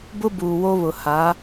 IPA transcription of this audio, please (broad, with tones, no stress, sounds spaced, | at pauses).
b ʊ˦ b uː˨ w o˦ β ʊ˨ h a˨˦